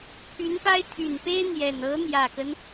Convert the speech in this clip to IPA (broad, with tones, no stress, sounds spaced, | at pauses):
pʰ y˧˥ n p a˥ ɪ̯ t̪ʰ y˨˩ n p e˥ ɪ̯ n̪ j ɛ˨˩ n ɤ˧˥ n̪ j ä˨˩ k ə˦ n